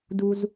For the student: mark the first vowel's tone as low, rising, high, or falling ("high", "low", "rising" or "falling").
high